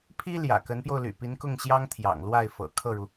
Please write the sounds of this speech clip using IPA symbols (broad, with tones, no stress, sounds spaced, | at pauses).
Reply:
pʰ i˥ l j ä̰˨˩ k ə˧˥ n p j o˧ ʊ̯ l y̰˨˩ p i˧˥ n k ʊ˥˩ ŋ ɕ j ɑ˥ ŋ t̪ʰ j ɑ̰˨˩ ŋ l w a˥˩ ɪ̯ f ɤ̰˨˩ kʰ ɤ˥˩ ɻ u˩